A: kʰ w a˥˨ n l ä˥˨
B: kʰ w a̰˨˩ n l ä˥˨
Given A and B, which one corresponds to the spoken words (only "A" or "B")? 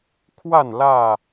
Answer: A